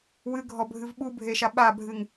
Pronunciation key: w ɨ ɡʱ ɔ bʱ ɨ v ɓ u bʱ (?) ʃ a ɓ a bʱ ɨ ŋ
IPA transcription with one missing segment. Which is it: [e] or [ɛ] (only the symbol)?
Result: e